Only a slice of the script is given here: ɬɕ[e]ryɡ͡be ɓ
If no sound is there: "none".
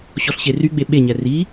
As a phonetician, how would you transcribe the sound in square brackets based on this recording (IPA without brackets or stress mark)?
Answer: e